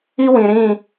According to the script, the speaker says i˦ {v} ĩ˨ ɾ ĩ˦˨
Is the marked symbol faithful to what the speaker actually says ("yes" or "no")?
no